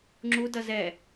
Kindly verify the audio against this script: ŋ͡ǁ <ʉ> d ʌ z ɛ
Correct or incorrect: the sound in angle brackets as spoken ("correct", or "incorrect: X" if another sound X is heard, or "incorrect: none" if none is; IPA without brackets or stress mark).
incorrect: u